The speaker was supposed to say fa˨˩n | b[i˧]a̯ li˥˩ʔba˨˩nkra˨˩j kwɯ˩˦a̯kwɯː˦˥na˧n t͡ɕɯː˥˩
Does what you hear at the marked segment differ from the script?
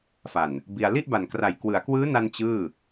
no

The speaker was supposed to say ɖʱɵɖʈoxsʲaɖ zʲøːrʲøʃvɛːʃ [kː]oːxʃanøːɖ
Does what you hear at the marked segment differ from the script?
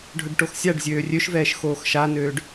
yes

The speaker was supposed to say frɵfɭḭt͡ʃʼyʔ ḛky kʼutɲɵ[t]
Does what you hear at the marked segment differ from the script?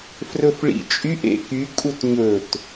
no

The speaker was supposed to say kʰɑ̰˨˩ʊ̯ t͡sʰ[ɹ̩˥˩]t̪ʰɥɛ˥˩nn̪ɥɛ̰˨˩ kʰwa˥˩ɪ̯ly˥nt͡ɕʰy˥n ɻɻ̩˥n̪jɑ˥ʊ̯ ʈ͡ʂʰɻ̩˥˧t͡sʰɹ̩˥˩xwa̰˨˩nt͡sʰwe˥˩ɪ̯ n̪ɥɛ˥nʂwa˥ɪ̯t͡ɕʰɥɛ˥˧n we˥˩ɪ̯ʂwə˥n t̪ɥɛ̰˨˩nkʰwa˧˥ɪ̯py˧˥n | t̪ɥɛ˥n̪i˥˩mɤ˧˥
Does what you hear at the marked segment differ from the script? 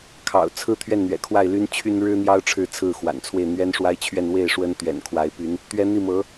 yes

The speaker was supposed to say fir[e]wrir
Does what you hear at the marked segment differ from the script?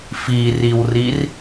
yes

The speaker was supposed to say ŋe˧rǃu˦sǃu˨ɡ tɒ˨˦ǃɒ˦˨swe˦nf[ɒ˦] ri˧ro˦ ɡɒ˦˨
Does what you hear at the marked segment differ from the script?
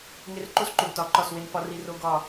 no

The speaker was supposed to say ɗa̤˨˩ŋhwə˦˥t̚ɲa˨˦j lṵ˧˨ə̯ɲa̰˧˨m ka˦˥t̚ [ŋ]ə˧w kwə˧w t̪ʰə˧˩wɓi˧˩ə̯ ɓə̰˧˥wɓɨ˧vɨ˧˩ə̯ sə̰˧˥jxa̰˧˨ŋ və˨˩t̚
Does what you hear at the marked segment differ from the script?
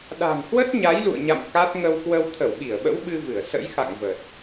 no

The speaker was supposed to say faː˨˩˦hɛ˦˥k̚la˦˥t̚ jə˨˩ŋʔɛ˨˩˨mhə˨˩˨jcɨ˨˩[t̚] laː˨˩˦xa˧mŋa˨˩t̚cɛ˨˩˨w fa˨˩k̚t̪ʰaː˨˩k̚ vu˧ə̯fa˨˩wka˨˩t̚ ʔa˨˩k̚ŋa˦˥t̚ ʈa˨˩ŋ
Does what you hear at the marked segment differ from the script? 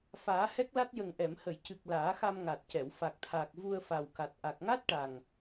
yes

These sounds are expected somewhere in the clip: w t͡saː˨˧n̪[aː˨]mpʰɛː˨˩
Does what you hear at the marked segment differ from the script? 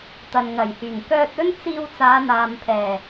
no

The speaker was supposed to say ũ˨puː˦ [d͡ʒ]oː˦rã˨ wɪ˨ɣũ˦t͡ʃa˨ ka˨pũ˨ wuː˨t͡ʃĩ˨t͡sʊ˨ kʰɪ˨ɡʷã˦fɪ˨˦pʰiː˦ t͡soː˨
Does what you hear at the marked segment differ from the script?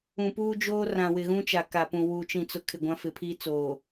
no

